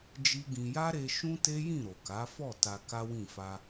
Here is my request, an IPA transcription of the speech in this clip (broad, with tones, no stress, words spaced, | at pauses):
d͡ʒi˦ɡĩ˧ ja˦ɾe˧ ʃũ˦te˦ jĩ˦˨ɾo˨ka˨˦fɔ˦˨ ta˧ka˦wĩ˦˨ fa˧